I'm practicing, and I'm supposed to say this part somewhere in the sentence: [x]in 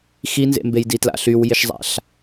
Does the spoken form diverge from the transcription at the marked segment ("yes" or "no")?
no